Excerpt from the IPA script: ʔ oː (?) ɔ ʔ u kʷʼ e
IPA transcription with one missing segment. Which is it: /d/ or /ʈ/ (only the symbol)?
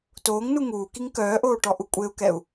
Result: ʈ